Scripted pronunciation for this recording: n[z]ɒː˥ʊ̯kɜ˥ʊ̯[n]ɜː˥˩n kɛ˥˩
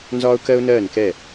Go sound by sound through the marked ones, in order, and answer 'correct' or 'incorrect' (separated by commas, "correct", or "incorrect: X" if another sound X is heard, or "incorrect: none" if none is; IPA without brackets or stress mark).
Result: correct, correct